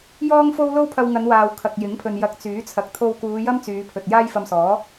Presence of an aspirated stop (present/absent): present